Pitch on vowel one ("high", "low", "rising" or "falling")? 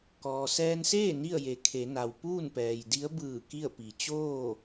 low